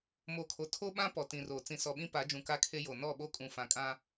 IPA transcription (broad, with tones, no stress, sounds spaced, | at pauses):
m o˨ kʰ o˨ tʰ o˦ ɓ ã˦ p ɔ˨ t ĩ˨ r oː˨ t͡s ĩ˨ s ɔ˨ ɓ ĩ˦ p a˨˦ d͡ʒ ũ˨ k a˦ kʰ e˦ j o˨ n ɔ˦˨ ɓ o˦ kʼ ũ˨ f ã˨ kʼ ã˦